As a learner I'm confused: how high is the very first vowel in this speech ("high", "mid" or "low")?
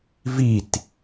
high